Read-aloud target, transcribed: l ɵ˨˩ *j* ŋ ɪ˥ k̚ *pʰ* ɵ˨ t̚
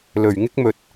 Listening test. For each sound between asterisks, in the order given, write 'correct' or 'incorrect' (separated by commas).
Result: incorrect, incorrect